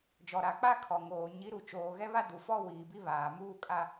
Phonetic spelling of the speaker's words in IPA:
d͡ʒ ɔ˨ ɾ a˨ k͡p a˦ kʰ ɔ˨ ŋ oː˨ ɲ i˨˦ ɾ u˨ t͡ʃ oː˨ ɣ ɛ˦ β a˦ d u˨ f ɔ˦ w iː˨ b i˦ β aː˨ m uː˦ kʼ a˦

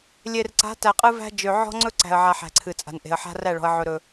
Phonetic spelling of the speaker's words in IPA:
lʲ e˨ r ǀ a̤˨˦ t æ˨ qʼ ɨ˦ v æ̤˦ d͡ʒ ø˨ ʕ ɔ̤˦ ŋ͡ǀ ɵ˦ ǀ æ̤˨ ə̯ ʕ a˨ ħ æ̤˨ ǀʰ ɨ˨ t͡sʼ a̤˨ n ʔ e̤˨ ə̯ ħ a̤˦ r æ˦˨ ɭ ɔ̤˨ ə̯ ʕ ɵ˨ ɾ ɵ˨

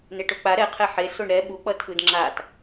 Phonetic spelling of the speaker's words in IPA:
n e ʈ o k͡p a ɾ ɛ qʰ ɛ ħ e s o ɳ ɾ ɛ ɓ u k͡p ʌ tʰ ɯ d ŋ͡ǁ a t

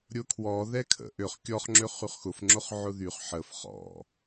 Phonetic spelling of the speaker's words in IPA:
ɾʲ ʊ kʰ w ɔ ð ɛ kʰ ə̰ ʔ ø χ kʲ ɔ χ ŋ͡ǁ ø χ y χ x ʊ f ŋ͡ǁ ʊ χ ʕ ʊ ð y χ ħ ə f χ ɔ̰

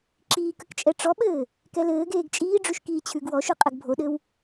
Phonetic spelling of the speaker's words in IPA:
ǁ iː k ə k t͡ʃʼ ɛ ʈ͡ʂ ɔ ɓ ɘː | k ɛ l ɘː ɡ eː ɡ t͡ʃʼ iː ɖ͡ʐ ʉ ʃ k iː t͡ɕʰ ʉ ɡ w ɔ ʃ ʉ qʼ ɘ ɡ bʱ o ɗ ɘ w

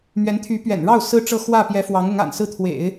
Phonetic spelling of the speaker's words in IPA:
m ɥ ɛ˧˥ n t̪ʰ y˧˥ p ɥ ɛ̰˨˩ n ɻ ɑ˥˩ ʊ̯ s ɹ̩˥ ʈ͡ʂ ɤ˥˧ x w ä˥˩ p j ɛ˧˥ f w ɑ˧˥ ŋ ʊ˧˥ ŋ a̰˨˩ n s ɹ̩˥˩ t̪ʰ w ḛ˨˩˦ ɪ̯

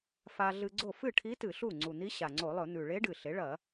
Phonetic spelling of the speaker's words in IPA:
f a˧ ɮ ɨ˧ ɡ͡ǀ o˥˩ f ɨ˥˩ ʈʰ i˧˥ t ɨ˧˩˧ ɬ u˥˩ ŋ͡ǀ u˨˩ n̪ i˧˥ ɕ a˨˩ ŋ͡ǀ o˧˩˧ lˠ ɵ˧˩˧ n̪ ʉ˨˩ ɭ e˧˥ ɖ ɨ˨˩ ɬ e˩˥ ɭ ɐ˧˩˧

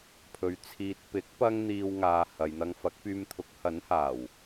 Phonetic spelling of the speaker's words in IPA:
pʰ ɵ˨ ɥ t͡sʰ iː˨ t̚ p ɪ˨˥ k̚ p ɐ˥ ŋ n̪ iː˧ w ŋ aː˨ h ɐ˨ j n̪ ɐ˧ ŋ f ɐ˨˥ k̚ p yː˧ m t̪ʰ ʊ˨˥ k̚ h ɐ˨˥ n h aː˨˩ w

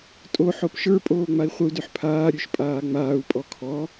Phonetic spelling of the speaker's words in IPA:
tʼ o ħ o p ʃ ə˞ pʼ oː ŋ͡m a i̯ χʷ ə u̯ d ʉ ħ pʰ aː ɾʲ ʉ ʃ pʼ aː ŋ͡m aː u̯ pʼ ɔ kʰ ɔ

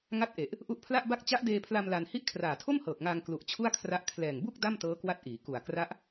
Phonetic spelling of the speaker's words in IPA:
ŋ a˥˩ t̚ ʔ e˨˩ ʔ | ʔ u˦˥ ʔ pʰ l a˥˩ ʔ b a˥˩ k̚ t͡ɕ a˦˥ ʔ d eː˧ pʰ l a˧ m l a˧ n h i˥˩ ʔ kʰ r aː˨˩ tʰ o˥˩ m h ɤː˨˩ k̚ ŋ aː˧ ŋ k l u˨˩ ʔ t͡ɕʰ u˥˩ a̯ kʰ r a˦˥ ʔ kʰ l ɛː˨˩ ŋ b u˥˩ k̚ d a˥˩ m t ɤː˦˥ k w a˦˥ t̚ ʔ iː˩˦ k u˨˩ a̯ k r a˦˥ ʔ

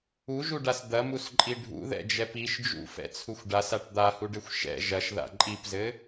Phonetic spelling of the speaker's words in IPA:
u ʒ u ɖ a s d̪ ɐ m u s ǃʼ i ɖʱ ṵ ð ɛ̰ d͡ʒ ɛ p i ʃ d͡ʒ ṵ f ɛ̰ t͡sʰ u xʷ ɖ a s a ʈ d̪ a h u ɖ ɘ xʷ ʃ ɛ̰ ʒ ɐ ʃ ð a̰ ǃʼ i p z ɘ

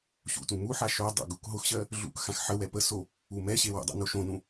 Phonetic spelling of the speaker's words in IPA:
ɕ ṵ t ũ m u ħ a ʃ o dˤ ə̰ ɡ u k ɦ ʊ x ɕ ɜ | ɮ ṵ k x ã x ħ ə w ɛ p ə s o | u m ɛ ɕ e w ə̰ dˤ ɛ̰ n o ʃ õ n ũ

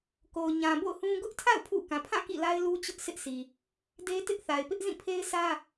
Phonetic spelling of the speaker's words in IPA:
k o˨ ʊ̯ ɲ ã˨ b o̰˦˨ ʊ̯ h ũ˦ ɡ ʊ˦ ʔ tʰ a̰˦˨ ʊ̯ pʰ ṵ˦˨ k ã˨ pʰ ã˦˨ k ḭ˦˨ l a˦ ɪ̯ l u˦ t͡ɕ ʊ˦ ʔ s ɪ˦ ʔ sʰ i˨ | d e˦ t ɪ˦ ʔ θ a˨ ɪ̯ p ɪ˦ ʔ z ĩ˦˨ pʰ e˦ ɪ̯ sʰ ä˦

